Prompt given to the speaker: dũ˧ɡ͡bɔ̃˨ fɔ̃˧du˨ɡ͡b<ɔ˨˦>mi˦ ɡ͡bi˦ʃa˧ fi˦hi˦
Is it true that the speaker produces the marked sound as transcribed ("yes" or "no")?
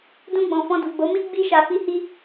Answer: no